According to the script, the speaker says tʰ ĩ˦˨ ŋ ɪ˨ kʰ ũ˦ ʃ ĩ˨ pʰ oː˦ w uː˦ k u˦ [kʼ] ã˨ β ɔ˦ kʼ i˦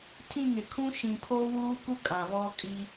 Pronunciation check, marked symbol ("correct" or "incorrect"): correct